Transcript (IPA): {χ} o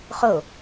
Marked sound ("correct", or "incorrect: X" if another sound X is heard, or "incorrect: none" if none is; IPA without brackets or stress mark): correct